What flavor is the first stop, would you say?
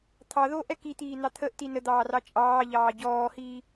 aspirated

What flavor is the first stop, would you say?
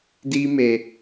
plain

